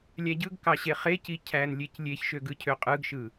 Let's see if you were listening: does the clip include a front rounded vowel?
yes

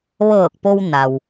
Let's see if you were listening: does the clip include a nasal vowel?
no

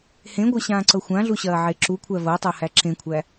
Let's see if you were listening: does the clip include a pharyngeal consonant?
yes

